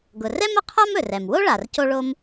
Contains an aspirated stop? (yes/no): yes